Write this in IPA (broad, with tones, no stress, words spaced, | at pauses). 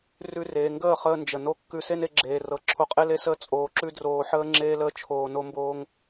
rʉ˧reː˨ŋɡəː˦˨χəː˧ nd͡ʒə˨no˦ kːʉ˧se˦ne˧ɡ͡ǁeː˨ rɤ˧ ǁʰo˧qʼe˦le˦səː˦ t͡sʼoː˧ǁʉ˦droː˧ħəː˦ ŋ͡ǁeː˦ləː˦ t͡ʃʰoː˧no˦mboː˦ŋ